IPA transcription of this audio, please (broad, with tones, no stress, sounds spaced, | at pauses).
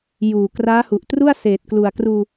j uː˨˩ k r aː˦˥ h u˨˩ ʔ t r u˥˩ a̯ s eː˨˩ t̚ k l u˨˩ a̯ k r uː˧